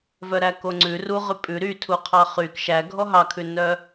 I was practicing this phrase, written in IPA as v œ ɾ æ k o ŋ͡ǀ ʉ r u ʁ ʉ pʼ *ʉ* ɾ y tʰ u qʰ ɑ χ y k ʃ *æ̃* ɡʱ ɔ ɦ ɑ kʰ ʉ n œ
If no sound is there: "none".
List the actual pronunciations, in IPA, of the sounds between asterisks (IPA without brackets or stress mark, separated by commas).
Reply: ʉ, æ